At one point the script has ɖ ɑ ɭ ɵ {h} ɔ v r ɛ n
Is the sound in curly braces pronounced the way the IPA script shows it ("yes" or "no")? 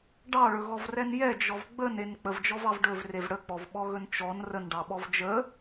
no